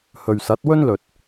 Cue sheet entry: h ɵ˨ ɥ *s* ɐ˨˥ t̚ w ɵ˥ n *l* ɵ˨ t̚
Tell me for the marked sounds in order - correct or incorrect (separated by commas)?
correct, correct